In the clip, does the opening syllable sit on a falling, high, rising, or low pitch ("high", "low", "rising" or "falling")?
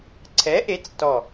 rising